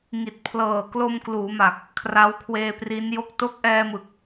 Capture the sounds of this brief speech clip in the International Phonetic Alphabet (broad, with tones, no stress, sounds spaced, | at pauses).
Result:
ŋ i˨˩ t̚ pʰ l ɤː˨˩ k l o˧ m k l uː˩˦ m a˨˩ k̚ | kʰ r a˦˥ w kʰ w eː˧ p r i˦˥ n j o˥˩ k̚ t o˦˥ k̚ ʔ ɛː˧ m ɯ˨˩ k̚